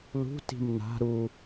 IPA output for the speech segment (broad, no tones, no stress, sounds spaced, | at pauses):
l ṳ t i̤ m n a̤ ɾ u